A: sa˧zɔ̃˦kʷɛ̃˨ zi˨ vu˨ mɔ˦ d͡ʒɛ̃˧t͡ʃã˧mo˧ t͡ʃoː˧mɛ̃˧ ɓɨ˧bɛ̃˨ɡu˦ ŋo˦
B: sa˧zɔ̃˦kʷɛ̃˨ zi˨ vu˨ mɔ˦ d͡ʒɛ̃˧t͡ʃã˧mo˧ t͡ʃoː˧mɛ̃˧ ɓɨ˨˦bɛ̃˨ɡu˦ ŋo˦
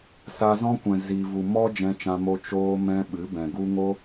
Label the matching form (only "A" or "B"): B